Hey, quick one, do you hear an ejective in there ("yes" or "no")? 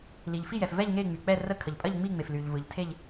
yes